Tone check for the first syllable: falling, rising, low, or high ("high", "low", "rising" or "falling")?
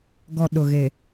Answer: low